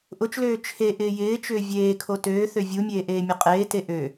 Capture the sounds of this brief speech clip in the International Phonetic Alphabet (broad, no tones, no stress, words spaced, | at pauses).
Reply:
ʔʊt͡ʃløː t͡ʃʰe ʔɪːjɪːt͡ʃʏː vʲeːkʰo tøːθø vʲumʲeː ʔeːmʲʊqʼeːte ʔø